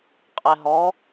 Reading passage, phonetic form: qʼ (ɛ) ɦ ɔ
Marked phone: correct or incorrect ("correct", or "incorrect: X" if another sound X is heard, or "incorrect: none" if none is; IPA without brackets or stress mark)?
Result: correct